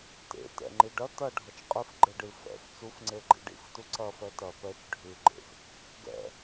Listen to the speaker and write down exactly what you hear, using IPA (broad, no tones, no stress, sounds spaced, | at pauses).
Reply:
t ḛ t ɛ̰ ŋ͡ǃ i ɖ ɐ t ɐ ɖʱ ʌ t͡ʃ qʼ ɨ f ɡ͡ǃ e ɖ ɨ f ɛ̰ f t͡s u f ŋ͡ǀ e ɡ͡ǃ ḭ ɖ ḭ f t u ǀ ɐ f ɛ t ɐ p ɛ t͡ʃ ɖʱ ʉ ɡ͡ǃ ḛ f | ɡ ɛ̰